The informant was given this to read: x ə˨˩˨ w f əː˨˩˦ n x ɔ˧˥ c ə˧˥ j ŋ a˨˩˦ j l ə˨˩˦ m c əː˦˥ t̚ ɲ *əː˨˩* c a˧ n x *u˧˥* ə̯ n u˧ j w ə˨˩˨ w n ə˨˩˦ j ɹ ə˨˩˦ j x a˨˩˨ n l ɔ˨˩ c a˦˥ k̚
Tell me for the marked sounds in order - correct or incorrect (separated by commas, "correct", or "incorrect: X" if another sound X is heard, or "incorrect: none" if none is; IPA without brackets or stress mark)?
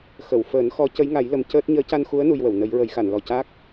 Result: incorrect: əː˧˥, correct